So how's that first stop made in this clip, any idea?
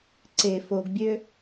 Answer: click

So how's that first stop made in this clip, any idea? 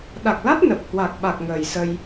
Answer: implosive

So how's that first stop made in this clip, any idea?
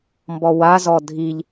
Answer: plain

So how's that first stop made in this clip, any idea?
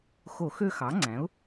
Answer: click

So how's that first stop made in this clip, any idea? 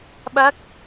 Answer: implosive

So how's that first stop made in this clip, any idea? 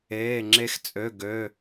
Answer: click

